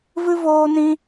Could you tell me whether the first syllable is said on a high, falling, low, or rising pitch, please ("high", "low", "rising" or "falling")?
high